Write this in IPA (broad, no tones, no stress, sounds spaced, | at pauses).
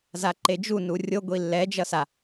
z a ǃ e d͡ʒ u n u rʲ o ɡʷ i lː ɛ d͡ʒ ʌ s a